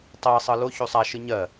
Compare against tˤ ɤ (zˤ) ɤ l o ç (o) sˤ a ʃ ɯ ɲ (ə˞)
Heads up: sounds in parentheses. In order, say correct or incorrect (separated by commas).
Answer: incorrect, incorrect, incorrect